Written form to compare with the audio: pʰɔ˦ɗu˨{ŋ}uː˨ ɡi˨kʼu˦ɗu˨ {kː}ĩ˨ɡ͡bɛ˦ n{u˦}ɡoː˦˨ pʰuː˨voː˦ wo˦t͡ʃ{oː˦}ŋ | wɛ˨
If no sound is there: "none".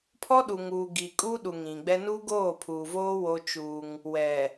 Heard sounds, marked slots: ŋ, ŋ, u˦, uː˦

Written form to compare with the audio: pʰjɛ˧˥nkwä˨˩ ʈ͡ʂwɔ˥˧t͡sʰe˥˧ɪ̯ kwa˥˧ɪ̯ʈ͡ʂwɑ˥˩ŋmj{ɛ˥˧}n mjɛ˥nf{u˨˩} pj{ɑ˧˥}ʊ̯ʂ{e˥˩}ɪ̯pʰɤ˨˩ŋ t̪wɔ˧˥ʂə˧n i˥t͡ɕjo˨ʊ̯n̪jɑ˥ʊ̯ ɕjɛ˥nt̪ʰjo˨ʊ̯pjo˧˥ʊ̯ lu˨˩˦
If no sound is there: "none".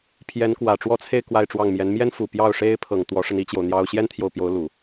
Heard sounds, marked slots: ɛ˧˥, u˨˩, ɑ˥˩, e˥

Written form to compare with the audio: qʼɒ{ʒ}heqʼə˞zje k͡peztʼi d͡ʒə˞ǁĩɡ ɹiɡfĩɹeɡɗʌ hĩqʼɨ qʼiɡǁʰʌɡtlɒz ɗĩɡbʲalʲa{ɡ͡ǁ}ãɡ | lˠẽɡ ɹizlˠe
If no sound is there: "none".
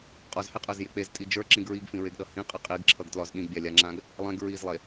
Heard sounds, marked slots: z, ŋ͡ǁ

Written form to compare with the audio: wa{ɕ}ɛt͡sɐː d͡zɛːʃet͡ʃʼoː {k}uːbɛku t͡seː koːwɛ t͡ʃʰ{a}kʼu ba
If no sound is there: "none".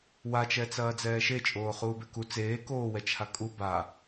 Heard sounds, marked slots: t͡ʃ, χ, a

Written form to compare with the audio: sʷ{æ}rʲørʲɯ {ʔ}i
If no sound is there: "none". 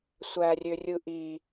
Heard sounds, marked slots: æ, ʔ

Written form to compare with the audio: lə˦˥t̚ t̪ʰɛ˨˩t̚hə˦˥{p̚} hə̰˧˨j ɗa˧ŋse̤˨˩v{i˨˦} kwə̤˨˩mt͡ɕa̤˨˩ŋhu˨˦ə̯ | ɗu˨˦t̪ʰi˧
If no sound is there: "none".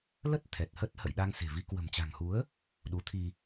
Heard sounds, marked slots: t̚, i˨˦

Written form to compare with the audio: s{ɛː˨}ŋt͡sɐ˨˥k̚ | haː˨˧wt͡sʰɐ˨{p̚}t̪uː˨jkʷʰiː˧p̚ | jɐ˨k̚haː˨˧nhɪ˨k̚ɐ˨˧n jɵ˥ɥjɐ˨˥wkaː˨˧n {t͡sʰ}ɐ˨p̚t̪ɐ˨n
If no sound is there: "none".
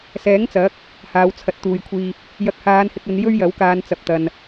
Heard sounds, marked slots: ɛː˨˥, t̚, t͡s

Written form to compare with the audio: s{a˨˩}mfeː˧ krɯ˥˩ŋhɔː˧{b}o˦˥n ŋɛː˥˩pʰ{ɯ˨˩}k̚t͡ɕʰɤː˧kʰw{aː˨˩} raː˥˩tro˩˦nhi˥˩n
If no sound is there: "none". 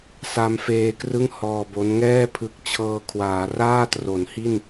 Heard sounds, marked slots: a˧, b, ɯ˨˩, aː˩˦

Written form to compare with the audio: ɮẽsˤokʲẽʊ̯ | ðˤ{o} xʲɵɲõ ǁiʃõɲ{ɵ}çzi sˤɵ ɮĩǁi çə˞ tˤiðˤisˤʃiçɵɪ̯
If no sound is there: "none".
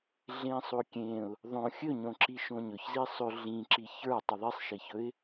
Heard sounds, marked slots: õ, ɵ

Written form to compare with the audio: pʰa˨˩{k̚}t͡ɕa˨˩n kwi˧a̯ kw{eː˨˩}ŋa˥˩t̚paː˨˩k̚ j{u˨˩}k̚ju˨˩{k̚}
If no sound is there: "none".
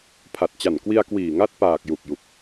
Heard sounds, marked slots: t̚, iː˨˩, u˨˩, k̚

